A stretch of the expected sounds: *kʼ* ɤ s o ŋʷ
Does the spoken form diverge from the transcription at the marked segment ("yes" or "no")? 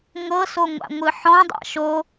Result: yes